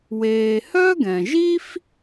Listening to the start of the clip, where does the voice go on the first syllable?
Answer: low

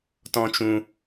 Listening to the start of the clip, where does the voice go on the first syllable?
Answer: high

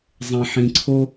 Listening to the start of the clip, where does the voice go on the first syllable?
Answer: low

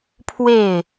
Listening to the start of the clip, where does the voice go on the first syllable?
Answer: falling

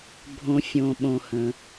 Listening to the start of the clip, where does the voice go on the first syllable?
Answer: low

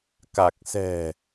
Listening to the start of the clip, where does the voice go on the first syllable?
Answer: low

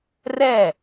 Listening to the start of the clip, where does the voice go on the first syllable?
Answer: falling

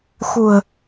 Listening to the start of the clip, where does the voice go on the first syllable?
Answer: low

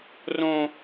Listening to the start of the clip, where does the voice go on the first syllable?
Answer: high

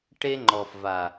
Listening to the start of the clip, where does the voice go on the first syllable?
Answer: high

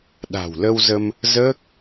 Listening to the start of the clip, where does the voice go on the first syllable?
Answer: low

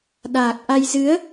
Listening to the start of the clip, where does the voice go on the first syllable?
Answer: low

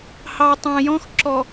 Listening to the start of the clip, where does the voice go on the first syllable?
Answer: low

